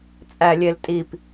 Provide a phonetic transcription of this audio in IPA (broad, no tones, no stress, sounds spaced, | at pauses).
t͡sʼ æ lʲ e l tʼ i p